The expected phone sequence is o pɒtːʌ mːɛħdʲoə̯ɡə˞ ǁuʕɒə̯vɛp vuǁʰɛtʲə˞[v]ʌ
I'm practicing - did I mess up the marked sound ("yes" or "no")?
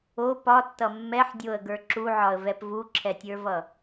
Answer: no